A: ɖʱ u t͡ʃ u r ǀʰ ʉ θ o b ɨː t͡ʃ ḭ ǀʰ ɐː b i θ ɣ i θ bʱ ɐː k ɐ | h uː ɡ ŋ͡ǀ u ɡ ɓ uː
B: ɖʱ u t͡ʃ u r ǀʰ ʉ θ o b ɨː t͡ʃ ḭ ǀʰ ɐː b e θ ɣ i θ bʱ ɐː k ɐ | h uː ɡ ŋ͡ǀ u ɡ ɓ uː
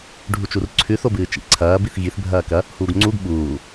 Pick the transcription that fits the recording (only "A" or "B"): A